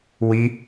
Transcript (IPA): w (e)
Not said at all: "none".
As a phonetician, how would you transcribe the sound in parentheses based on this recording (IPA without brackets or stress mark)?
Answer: i